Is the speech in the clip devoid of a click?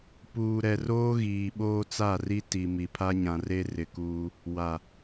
yes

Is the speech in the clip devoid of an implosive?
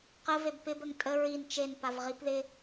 yes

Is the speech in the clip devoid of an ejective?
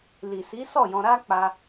yes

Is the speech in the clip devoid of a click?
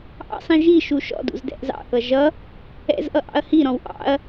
yes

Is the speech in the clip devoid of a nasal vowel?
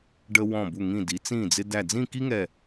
no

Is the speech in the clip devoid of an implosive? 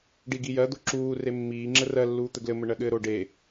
no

